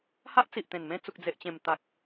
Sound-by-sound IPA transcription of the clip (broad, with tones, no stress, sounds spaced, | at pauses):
h a˦ ʔ t͡s i˨ ʔ t̪ ẽ˨˩ n m ẽ˥˧ t͡s u˨ k̚ d͡z e˨ ʔ t͡ɕ ẽ˨˩ m t̪ a˨ k̚